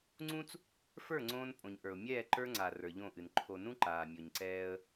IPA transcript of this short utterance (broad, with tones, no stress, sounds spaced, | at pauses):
ŋ͡ǀ ũ˦ t͡s | f ə˞˦˨ ŋ͡ǀ õː˦ n pʼ õ˨ ɲ ʔ ə˞˨ ʊ̯ mʲ ɛː˦˨ ǃ ə˞˦ ŋ͡ǀ a˨ r ə˞˨ ʎ õ˦˨ ʔ ɨ˨ n ǃʰ o˨ n ũ˦ ǃ aː˨ mʲ o˨ ɲ ǀ ɛː˦ ə̯